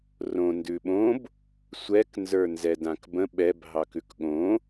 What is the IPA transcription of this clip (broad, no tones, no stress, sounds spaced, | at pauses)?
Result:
r õ n d ʉ ɓ õ b | sʷ ɛ k n z ə˞ n z ɛ d ã k b ə̃ ɓ ɛ b ɦ ɑ k ʉ k ɠ õ